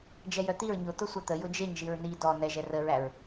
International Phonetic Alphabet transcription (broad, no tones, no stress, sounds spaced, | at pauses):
d͡ʒ ɛ j œ t̪ i ɹ ɲ ʊ t̪ ʊ sʷ ɛ t̪ ə j ʊ d͡ʒ e ɲ ʒ i ɹ n i d ɔ n ɛ ʒ ɛ r ə ɹ æ ɹ